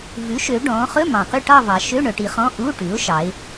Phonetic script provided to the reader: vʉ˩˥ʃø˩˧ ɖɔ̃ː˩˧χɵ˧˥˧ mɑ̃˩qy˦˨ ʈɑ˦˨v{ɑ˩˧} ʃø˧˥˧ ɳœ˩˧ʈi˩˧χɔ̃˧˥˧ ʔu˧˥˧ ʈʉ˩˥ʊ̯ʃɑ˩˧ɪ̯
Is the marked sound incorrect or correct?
incorrect